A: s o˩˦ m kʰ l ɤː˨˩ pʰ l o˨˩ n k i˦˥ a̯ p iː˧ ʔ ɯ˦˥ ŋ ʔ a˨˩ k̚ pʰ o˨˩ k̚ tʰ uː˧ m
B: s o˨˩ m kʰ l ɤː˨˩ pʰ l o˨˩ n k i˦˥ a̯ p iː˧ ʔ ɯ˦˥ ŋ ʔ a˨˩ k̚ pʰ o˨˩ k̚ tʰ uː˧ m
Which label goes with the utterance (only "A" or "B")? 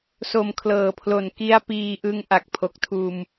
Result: B